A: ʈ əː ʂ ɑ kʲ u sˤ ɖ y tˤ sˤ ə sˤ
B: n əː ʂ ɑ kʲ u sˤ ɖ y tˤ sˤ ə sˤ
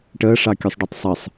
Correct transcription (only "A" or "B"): A